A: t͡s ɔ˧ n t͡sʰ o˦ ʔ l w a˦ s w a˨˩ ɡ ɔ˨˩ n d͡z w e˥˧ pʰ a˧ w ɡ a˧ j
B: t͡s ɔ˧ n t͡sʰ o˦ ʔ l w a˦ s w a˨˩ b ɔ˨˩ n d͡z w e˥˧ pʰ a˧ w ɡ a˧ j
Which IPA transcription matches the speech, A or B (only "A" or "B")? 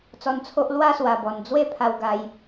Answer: B